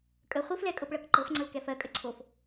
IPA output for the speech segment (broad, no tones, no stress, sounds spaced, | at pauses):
kʼ ə χʷ i f l ɛ kʼ ɤ p ɭ ɤ k ǃ ɤ f ŋ͡ǀ ɤ l k ɛ f ɜ kʼ ə ǀʰ o f